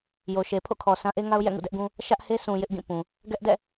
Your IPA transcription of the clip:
j o˨ ʃ e˨ pʰ o̰˦˨ kʰ ɔ˨ s ã˦ ʔ e˦ ŋ a˦ ʊ̯ j ɛ̰˦˨ ŋ ṵ˦˨ d ɛ˦ ʔ ɡ ũ˦ | ʃ ä˦ ʔ h e˦ s ũ˨ j ɪ˦ ʔ ɡ ĩ˦˨ p ũ˨ | ɡ ɛ˦ ʔ d ɛ̰˦˨

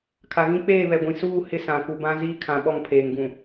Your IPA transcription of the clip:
kʰ a˨ ɣ ĩ˦ k͡p eː˦˨ β ɛ˨ ɡʷ ĩ˨ s uː˦˨ h ɪ˦ s ã˨ k u˨ b ã˦ z iː˦ kʰ ã˨ ɓ ɔ˦˨ ŋ pʰ eː˨ ŋ ɡ ũ˨

